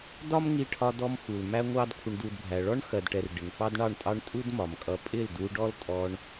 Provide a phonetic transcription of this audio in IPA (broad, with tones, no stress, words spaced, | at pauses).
dɒ˦mŋi˧ʈʰɒ˧dɔ˧m xu˨lmæ˦ŋʷɑ˦d kʷʰə˦ɳdu˦dbʱæ˧ ɭɔ˦ɳxɜ˨dʈɛ˨r ɖɪ˨ŋfɑ˦dɳɑ˦˨ɳtʼɑ˦ɳ tʼu˦d mɒ˨mkʼʌ˧ pʼɪ˦˨ldu˧ɖɔ˦l tʼɔ˧ɳ